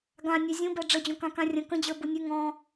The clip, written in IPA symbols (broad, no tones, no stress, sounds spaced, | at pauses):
ɡ ã nʲ ø zʲ ũ b ɛ ɖ͡ʐ ə d͡ʑ õ k ã k ã rʲ ə̃ k ə̃ d͡ʑ ə˞ b u nʲ ʉ ŋ ɔ̃